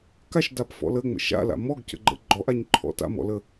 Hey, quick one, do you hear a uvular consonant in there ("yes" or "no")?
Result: no